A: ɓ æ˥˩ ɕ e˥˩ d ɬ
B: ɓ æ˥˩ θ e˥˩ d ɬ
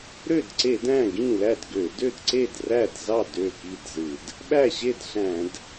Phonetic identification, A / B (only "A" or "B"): A